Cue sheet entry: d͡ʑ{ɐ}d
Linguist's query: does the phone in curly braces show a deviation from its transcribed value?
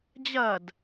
no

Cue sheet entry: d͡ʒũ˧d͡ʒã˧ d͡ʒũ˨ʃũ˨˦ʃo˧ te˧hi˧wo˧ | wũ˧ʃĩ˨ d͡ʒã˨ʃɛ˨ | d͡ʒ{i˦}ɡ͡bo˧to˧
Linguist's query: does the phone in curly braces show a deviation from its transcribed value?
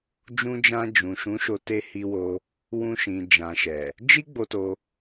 no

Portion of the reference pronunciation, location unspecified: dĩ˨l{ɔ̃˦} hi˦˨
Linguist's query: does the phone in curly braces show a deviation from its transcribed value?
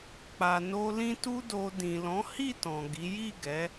yes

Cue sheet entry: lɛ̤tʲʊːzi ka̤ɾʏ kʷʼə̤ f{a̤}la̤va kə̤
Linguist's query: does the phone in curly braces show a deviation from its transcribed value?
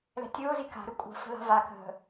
yes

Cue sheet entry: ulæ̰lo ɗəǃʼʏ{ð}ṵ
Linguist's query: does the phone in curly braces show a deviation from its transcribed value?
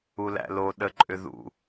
no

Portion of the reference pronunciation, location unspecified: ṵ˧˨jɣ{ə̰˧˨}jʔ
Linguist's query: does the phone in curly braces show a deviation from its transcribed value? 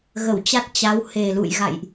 yes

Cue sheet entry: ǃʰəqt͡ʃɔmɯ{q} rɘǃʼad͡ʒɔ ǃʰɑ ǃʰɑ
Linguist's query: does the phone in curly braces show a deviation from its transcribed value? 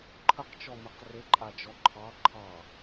no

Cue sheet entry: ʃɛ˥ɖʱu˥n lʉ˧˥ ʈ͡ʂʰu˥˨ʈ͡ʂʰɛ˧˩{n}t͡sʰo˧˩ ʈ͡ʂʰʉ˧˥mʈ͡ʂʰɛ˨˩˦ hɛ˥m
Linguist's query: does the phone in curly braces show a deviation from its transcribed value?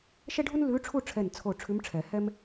no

